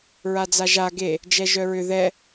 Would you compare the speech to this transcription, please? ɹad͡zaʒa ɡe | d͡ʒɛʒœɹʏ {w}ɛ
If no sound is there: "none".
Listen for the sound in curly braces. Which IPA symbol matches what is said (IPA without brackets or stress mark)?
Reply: ð